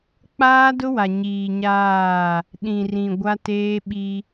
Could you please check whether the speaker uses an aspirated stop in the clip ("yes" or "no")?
no